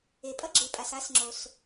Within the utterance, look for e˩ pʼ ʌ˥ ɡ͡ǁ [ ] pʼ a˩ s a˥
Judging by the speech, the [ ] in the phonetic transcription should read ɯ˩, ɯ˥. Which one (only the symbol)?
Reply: ɯ˩